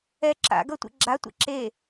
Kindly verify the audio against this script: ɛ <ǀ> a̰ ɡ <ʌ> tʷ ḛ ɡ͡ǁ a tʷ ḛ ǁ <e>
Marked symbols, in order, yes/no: no, yes, yes

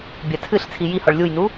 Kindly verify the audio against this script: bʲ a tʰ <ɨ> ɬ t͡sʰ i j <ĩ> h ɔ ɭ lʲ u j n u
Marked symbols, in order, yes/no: yes, no

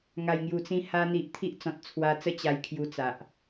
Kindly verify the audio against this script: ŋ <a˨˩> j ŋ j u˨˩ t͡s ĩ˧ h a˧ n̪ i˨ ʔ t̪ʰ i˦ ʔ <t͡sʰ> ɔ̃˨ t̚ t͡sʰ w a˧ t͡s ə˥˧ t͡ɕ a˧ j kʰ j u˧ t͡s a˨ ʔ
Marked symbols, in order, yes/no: yes, no

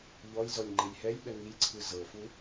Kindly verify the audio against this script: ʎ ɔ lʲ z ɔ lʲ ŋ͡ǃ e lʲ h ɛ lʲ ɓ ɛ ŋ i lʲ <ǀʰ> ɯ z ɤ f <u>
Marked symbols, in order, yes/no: yes, yes

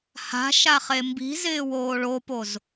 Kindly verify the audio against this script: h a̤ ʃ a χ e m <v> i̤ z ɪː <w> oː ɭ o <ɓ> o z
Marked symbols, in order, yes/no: no, yes, no

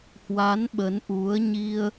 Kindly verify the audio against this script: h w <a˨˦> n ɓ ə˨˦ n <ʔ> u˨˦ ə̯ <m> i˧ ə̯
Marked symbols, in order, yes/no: yes, yes, no

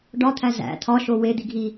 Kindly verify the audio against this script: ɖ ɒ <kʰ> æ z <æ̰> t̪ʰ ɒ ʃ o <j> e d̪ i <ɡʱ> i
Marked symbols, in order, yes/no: no, yes, no, yes

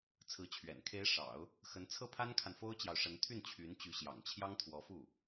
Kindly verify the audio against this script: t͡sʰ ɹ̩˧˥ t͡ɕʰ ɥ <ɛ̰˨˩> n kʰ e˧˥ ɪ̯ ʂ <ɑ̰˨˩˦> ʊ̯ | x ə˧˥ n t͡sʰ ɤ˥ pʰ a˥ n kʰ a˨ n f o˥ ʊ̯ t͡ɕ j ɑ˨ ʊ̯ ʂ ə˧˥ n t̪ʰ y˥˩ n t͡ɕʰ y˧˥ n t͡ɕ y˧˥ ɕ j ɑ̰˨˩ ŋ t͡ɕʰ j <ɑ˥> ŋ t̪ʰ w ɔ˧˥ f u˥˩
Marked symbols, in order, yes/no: yes, yes, yes

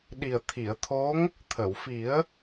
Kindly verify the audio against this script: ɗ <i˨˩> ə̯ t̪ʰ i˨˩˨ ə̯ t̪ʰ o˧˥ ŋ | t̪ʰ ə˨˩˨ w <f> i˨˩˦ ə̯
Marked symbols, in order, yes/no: yes, yes

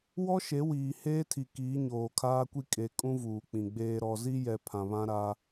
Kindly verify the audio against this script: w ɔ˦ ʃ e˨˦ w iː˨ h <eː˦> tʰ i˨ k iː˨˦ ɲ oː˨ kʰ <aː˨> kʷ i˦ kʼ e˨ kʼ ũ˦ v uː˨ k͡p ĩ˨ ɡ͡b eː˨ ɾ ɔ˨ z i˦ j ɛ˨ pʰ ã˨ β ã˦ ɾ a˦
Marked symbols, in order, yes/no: yes, no

